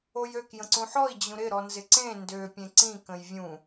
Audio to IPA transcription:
ojøk jə̃ǀũħɔi̯ d͡ʑũɾɪ ɾɔnzɪǀẽ ndø pʲẽǀĩ kə̃jvʲũ

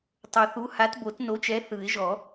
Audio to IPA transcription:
tˤo˨˩θu˨˥ ha˨˥tbo˨˩˦tno˨˥t͡ʃɛ˨˥ θɯ˨˩˦ɪ̯ʒɔ˨˩˦

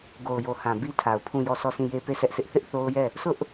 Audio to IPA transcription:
ɡo˨ʊ̯jo˨hã˨ bi˦tʰa˨ʊ̯ pʰũ˦˨jɔ˦˨sɔ˦˨sĩ˦˨ je˦pe˦˨sɛ˦ʔsʰɪ˦ʔ θɪ˦ʔθo˦ʊ̯ jɛ˦˨ | sʊ˦ʔ

